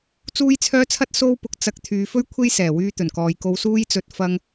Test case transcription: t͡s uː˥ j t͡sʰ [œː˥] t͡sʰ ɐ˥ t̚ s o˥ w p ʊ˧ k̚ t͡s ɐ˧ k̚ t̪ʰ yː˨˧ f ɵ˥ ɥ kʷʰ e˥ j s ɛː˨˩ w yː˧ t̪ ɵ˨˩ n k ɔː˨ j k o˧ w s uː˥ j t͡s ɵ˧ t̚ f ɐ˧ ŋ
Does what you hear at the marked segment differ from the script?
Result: no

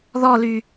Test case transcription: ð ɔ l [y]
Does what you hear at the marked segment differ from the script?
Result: no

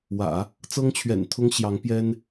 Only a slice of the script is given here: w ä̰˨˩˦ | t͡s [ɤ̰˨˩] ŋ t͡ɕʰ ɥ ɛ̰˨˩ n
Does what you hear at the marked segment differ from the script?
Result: yes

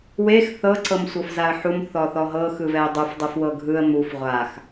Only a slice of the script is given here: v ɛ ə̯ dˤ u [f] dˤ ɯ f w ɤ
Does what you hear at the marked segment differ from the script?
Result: no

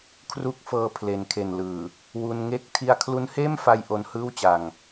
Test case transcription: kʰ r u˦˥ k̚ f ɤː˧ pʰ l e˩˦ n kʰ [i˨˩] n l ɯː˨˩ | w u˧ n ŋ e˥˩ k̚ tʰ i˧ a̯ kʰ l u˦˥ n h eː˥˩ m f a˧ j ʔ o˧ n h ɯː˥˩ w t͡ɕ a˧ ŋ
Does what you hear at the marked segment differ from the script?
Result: yes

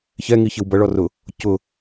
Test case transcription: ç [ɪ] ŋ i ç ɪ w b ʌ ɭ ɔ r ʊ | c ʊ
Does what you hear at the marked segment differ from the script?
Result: yes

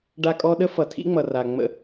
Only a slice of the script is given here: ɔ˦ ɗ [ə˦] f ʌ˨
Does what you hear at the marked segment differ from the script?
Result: no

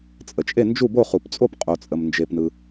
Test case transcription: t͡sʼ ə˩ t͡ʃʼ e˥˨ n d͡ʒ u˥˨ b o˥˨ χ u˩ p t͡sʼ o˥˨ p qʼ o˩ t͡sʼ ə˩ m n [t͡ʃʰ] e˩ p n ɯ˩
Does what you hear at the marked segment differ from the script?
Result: yes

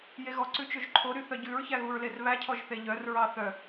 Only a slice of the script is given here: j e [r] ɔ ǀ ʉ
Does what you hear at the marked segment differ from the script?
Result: yes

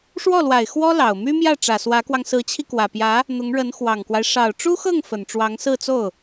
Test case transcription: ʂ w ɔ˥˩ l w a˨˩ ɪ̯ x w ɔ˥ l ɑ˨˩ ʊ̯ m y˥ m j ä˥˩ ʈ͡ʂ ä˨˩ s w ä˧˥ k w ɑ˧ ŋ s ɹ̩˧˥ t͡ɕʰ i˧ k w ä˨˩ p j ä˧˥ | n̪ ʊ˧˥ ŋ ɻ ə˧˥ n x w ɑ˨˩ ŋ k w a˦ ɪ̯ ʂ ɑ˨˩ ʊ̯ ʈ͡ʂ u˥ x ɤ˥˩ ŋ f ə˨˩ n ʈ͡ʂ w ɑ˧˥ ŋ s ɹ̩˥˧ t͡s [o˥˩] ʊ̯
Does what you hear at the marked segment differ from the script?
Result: no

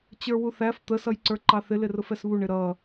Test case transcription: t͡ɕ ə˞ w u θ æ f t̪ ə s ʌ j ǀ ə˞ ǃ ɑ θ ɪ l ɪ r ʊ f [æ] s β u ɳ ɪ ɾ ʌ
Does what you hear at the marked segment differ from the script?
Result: yes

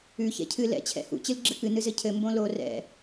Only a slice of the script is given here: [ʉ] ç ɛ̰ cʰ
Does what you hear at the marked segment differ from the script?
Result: no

